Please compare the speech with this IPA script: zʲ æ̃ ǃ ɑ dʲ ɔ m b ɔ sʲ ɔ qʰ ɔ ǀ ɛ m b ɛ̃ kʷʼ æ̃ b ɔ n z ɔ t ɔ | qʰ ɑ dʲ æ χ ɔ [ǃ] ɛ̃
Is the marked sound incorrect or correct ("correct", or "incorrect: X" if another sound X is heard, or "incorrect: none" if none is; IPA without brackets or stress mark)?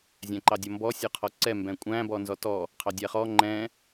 incorrect: ŋ͡ǃ